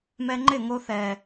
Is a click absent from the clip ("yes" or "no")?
no